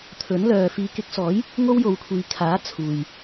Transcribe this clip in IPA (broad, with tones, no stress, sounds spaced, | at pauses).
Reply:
t̪ʰ ɵ˨˥ n l œː˨ f iː˨˧ k ɪ˨˥ k̚ s ɔː˨˥ j | ŋ o˥ w j o˨˧ w kʷʰ iː˨˧ kʰ aː˨˥ t͡sʰ uː˨ j